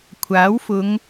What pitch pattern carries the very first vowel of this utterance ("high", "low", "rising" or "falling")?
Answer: rising